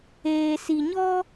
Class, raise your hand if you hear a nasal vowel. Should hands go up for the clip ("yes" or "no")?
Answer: no